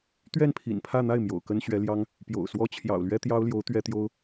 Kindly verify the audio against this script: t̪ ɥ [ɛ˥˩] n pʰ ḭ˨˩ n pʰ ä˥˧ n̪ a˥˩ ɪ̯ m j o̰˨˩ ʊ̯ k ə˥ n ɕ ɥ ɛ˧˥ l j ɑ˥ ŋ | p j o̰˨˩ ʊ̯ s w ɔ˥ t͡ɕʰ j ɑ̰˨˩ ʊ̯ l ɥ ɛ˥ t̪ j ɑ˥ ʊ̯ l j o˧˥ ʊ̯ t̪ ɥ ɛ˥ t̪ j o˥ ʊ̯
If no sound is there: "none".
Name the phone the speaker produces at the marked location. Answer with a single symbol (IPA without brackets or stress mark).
ɛ˥˩